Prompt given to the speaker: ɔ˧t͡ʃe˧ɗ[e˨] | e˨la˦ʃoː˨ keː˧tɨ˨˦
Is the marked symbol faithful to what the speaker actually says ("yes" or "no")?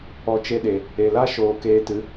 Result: yes